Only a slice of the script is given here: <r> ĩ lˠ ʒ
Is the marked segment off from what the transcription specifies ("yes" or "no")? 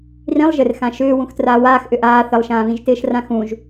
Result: no